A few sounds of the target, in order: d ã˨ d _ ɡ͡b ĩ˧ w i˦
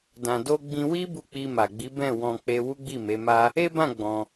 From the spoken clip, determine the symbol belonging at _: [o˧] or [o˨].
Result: o˧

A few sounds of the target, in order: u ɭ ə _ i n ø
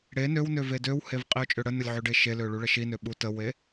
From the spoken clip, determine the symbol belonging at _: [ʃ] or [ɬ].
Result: ʃ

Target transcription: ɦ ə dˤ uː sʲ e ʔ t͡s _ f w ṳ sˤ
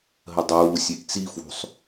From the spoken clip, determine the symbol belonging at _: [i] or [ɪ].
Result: i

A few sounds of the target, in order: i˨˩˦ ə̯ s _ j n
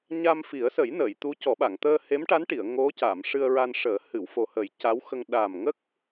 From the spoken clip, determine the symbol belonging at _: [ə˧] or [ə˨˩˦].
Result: ə˨˩˦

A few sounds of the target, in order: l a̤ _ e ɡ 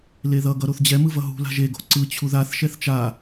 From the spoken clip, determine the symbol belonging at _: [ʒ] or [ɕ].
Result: ʒ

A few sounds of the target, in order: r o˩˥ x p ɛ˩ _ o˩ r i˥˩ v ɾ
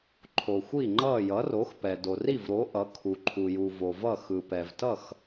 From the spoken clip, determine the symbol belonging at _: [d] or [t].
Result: d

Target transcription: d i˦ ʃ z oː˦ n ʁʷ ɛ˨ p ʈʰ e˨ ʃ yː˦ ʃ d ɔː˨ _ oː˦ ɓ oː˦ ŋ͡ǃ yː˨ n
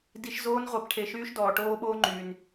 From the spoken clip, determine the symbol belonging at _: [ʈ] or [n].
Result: ʈ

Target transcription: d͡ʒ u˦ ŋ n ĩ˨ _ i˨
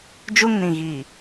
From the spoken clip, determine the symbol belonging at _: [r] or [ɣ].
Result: ɣ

